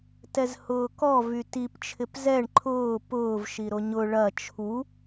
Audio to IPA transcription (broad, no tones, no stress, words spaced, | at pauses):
tɛzhʊːkɔ vytip t͡ʃʰɪpzɛɳ ǃʰʊː pʊːv ʃiɾoɲʊ ɭɐ t͡ʃʰu